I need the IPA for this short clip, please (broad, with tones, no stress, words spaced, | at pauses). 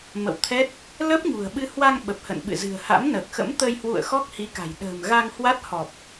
mə̰˧˨wt̪ʰɛ˦˥t̚ | ləː˦˥p̚ɲṳ˨˩ə̯ɓɨ˧ hwa˧ŋ ɓə˨˩p̚hə̰˧˨n ɓɨ̰˧˨zɨ̤˨˩ə̯ha̰˧˥mnəː˨˩k̚ xə̰˧˥mt̪əː˧jhwṵ˧˨ə̯ xɔ˦˥k̚hi˨˦ka̤˨˩j ɗə̤ː˨˩mɣa˧ŋ hwa˦˥t̚hɔ˨˩p̚